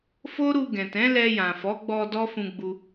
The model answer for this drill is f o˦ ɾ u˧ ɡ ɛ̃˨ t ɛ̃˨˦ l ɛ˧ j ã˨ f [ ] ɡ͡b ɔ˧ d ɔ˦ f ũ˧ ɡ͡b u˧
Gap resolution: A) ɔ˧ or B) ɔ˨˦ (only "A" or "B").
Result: B